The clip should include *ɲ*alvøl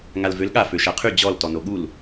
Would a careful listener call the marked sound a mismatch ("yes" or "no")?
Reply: yes